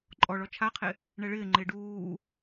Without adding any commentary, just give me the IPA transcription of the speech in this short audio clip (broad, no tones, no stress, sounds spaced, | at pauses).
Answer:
ǃʼ ɔ ɭ ɔ t͡ʃʰ a qʰ ɪ | ɳ ɛ ɭ ɪː ŋ͡ǃ ɪː ɖ uː